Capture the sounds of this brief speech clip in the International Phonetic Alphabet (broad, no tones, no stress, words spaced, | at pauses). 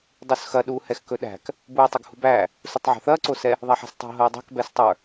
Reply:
dˤusxɐ ɗuːhɛxkɵɗæ̤k | buːtˤɵɡhṳbæː | sutˤʕo̤θɐː ǀosɛ | ðˤæħɛ̤stˤo̤ ɦɐːdˤɛ̤k bɛstˤə˞